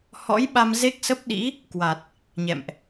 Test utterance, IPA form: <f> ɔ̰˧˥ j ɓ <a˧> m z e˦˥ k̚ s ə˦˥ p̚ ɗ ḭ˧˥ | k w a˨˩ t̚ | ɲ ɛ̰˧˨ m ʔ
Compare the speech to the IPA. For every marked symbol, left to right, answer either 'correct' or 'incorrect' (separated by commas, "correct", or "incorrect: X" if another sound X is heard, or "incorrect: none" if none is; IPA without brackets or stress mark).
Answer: incorrect: h, correct